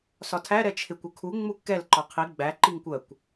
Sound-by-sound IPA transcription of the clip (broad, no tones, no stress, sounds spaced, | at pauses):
s ɒ tʰ æ ɾ ɛ t͡ʃʰ ɪ kʷ ʊ kʰ u ŋ͡m u kː ɛ l ǃ ɒ qʰ i ɡ͡b æ ǃ i ŋ kʷ ɜ kʷ